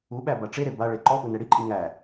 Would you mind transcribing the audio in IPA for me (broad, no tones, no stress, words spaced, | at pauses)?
uɓæ baʈ͡ʂeɾe baɭe ǃɔʔu nɛɽiǃʼi ŋæ